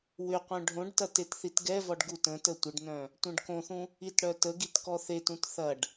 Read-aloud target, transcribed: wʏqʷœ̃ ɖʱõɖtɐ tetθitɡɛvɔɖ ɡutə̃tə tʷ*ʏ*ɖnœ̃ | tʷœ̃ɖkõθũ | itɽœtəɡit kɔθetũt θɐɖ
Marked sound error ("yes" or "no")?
yes